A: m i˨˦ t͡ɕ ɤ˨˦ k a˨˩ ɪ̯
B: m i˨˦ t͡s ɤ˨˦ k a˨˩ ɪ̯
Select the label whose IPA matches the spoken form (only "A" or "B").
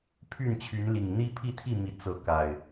B